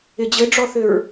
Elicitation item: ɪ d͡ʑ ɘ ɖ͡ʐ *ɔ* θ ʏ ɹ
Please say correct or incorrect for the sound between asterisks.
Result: correct